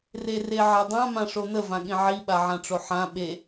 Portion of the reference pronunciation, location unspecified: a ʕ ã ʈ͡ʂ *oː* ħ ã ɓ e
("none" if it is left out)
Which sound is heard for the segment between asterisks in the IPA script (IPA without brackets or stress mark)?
o